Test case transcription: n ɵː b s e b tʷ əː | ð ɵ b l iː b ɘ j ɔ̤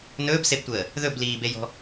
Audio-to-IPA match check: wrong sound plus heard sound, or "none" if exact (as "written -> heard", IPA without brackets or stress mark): ɘ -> e